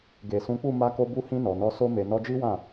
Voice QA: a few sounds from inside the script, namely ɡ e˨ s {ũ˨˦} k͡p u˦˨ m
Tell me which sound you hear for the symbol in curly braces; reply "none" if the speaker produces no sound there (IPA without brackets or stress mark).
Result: ũ˨˦